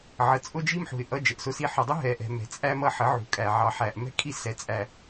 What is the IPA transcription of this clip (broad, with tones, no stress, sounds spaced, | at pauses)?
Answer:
ʕ ə˨ t͡sʼ ʊ˦ d͡ʒ i˦ m ħ ṳ˨ ɪ̯ ʔ ʌ˦ d͡ʒ ə˨ ʔ s ʊ˦ s i˦ ħ ʊ˨ dˤ ʊ˦ ɦ ɛ˨ ʔ ɛ̤˨ m ɛ̤˨ t͡sʼ æ˦ m ʌ˦ ħ ə˨˦ ʕ ṳ˨ kʼ æ˨ ʕ ɑ˨ ħ æ˨ ʔ m ɛ̤˦ kʼ i˦ s ɛ˨ t͡sʼ æ˨